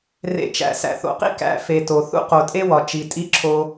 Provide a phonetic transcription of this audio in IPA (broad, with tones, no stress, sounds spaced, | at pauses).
r ḛ˨ t͡ʃ æ̰˨ s æ̰˨ θ o̰˨˦ q ḭ˦ k æ̰˦ f e˨ t o˨ θ ṵ˦ q o˨ tʼ e˦ w ɒ˨ t͡ʃ i˨ tʼ i˦ ǁʰ o˦